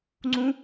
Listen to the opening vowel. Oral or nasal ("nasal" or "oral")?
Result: nasal